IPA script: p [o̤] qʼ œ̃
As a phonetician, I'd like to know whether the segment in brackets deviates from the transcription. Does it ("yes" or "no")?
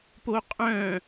yes